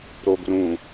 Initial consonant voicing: voiced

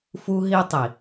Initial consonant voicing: voiceless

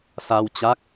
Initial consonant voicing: voiceless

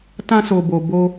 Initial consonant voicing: voiceless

